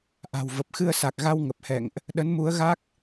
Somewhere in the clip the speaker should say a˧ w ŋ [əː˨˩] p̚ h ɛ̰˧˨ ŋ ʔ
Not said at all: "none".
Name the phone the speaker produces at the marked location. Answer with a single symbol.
ə˨˩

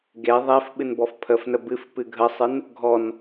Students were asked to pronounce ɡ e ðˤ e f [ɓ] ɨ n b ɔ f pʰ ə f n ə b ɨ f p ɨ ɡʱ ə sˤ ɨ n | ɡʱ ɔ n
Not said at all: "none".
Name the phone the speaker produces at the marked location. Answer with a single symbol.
ɓ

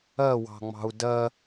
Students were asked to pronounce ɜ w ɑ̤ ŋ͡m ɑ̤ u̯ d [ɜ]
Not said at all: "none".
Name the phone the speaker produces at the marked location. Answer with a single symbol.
ɜ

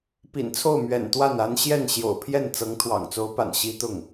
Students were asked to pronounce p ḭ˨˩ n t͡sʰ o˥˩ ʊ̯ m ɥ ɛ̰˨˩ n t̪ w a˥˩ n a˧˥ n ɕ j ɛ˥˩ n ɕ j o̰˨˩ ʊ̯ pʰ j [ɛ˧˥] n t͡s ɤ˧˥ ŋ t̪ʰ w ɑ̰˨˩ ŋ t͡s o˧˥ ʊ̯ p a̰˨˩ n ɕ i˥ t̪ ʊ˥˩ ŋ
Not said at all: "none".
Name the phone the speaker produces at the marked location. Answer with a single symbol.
ɛ˥˩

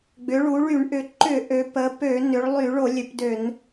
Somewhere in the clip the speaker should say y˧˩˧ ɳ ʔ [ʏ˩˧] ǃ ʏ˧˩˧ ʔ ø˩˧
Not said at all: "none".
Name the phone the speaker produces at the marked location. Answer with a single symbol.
ʏ˩˧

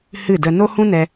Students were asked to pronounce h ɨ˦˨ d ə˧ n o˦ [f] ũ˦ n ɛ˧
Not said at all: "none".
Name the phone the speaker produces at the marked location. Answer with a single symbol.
h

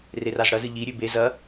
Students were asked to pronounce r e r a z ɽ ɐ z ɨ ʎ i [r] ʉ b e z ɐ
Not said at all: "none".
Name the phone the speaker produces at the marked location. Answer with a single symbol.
ɾʲ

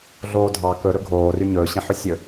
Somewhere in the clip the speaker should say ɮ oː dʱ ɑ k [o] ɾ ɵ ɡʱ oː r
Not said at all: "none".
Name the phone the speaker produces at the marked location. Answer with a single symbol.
ɵ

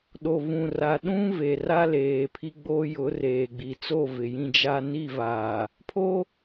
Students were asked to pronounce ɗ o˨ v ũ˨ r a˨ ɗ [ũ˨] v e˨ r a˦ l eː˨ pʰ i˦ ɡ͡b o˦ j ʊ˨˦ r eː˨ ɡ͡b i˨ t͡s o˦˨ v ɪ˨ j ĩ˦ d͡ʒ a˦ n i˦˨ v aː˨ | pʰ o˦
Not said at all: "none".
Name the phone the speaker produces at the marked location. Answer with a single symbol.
ũ˦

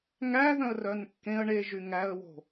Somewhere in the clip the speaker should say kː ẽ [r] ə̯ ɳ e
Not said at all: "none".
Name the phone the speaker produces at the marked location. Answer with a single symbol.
none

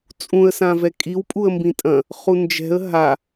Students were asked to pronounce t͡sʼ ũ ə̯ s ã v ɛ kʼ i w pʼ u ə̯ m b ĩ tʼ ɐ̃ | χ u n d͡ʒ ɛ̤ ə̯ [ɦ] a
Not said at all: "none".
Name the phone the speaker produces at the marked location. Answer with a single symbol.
ɦ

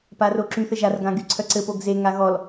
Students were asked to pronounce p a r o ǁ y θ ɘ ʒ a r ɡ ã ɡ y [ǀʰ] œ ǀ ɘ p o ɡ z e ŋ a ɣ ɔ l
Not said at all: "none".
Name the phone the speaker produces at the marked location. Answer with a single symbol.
ǀʰ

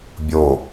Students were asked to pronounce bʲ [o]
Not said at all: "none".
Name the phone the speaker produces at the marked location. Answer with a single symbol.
o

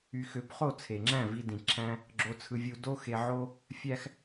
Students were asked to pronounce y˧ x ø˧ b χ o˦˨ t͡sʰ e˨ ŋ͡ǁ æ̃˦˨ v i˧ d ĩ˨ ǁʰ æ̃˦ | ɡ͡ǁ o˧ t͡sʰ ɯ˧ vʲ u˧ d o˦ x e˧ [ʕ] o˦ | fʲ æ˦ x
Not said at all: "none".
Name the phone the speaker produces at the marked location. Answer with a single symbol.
ʕ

